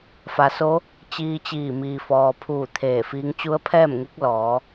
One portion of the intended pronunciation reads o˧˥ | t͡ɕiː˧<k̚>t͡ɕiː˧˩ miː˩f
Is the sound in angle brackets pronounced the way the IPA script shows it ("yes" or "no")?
no